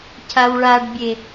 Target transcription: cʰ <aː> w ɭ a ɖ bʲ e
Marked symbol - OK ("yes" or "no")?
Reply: no